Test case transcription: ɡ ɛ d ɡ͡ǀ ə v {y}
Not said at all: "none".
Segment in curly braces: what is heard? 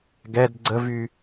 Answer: y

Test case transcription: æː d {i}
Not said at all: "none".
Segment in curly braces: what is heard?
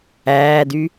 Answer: y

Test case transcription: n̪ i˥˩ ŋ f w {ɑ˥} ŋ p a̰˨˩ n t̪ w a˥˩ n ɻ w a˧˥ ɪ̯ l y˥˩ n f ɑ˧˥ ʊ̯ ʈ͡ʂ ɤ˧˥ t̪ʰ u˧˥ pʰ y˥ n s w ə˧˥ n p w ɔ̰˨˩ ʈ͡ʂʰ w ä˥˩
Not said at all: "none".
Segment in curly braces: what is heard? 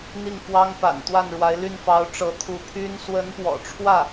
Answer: ɑ˥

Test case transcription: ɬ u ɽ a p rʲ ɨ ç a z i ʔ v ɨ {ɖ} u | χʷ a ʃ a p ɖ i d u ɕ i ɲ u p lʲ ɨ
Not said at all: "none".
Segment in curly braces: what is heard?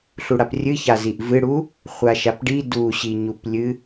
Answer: ɽ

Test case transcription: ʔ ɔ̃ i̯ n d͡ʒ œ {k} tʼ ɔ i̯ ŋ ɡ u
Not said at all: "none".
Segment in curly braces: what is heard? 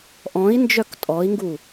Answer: k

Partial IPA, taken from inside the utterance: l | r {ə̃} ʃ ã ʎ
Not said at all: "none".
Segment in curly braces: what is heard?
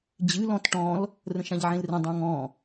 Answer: ə̃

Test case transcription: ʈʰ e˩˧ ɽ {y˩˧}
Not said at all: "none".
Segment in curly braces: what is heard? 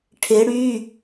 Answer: y˩˧˩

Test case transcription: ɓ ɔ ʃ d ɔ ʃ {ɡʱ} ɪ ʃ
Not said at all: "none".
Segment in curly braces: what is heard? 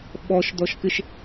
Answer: k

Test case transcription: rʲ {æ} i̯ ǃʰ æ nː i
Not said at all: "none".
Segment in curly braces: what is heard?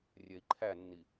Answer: ɛ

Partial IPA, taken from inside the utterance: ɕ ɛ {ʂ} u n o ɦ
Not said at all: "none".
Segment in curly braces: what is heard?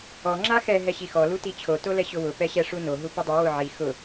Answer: ʂ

